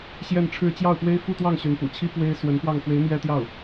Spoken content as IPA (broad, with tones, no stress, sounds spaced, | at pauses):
ɕ j ɛ˥˧ n ʈ͡ʂʰ ɻ̩˥˧ t͡ɕ j ɑ˥˩ ʊ̯ p w e˥ ɪ̯ f u˥˧ t̪ w ɑ˥˩ ŋ ɕ y˧˥ n p ṵ˨˩ t͡ɕʰ i˥ p w e˥ ɪ̯ s w ə˧˥ n p w ɑ˥˩ ŋ x w e˧˥ ɪ̯ m j ɛ˥ t̪ j ɑ˥˩ ʊ̯